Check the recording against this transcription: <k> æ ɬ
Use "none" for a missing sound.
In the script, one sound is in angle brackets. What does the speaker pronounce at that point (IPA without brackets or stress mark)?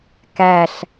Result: k